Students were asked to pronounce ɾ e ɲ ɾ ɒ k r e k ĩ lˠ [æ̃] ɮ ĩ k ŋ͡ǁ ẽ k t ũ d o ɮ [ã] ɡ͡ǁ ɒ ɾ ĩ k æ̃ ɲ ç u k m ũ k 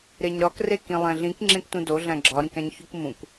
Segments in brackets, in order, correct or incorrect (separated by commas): correct, incorrect